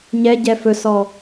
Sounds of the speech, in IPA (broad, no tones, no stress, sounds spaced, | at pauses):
ɲ ɛ ɟ ɛ f ɵ s ɔ